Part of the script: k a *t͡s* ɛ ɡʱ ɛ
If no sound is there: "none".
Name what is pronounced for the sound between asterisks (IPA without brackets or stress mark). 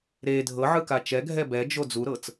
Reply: t͡ʃ